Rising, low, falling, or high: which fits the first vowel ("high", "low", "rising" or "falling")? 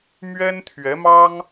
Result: high